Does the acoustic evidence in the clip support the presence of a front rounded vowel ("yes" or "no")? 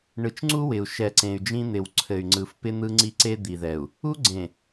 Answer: yes